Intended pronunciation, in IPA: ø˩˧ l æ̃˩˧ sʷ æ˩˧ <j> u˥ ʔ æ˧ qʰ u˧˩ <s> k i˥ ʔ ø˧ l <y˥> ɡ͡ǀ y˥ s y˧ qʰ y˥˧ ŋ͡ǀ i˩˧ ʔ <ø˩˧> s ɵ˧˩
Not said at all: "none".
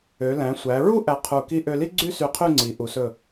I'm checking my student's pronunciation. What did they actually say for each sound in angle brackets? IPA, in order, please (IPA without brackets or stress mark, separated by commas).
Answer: ɹ, none, i˥, u˩˧